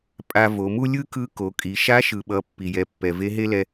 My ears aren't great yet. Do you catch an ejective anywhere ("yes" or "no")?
yes